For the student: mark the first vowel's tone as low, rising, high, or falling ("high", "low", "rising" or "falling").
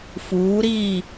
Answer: rising